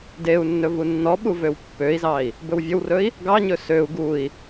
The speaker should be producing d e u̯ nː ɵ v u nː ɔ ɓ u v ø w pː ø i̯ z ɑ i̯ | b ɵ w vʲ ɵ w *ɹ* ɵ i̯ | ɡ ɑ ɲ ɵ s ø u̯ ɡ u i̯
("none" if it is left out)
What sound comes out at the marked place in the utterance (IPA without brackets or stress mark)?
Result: r